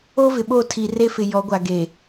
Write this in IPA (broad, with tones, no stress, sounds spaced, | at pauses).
o˦ v ɪ˨ ɓ o˦˨ tʰ i˨ r e˦ f ɪ˨ j ɔ˨˦ ɡʷ a˨ ɡ e˨